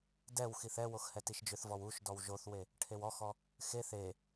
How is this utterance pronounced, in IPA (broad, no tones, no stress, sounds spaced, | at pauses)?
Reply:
d ɛ w x i θ ɛ w o x h ɛ t i ʃ d͡ʒ ʏ θ v ɔ w u ʃ d ɔ w ʒ o θ w e | ʈʰ e w ɔ x ɔ | x e θ e